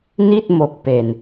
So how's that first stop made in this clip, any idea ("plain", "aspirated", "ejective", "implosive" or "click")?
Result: plain